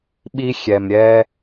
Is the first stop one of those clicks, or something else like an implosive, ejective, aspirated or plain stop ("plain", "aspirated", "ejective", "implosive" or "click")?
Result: implosive